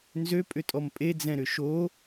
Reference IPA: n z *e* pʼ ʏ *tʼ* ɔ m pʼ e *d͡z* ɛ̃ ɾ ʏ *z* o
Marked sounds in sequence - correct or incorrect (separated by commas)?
incorrect, correct, correct, incorrect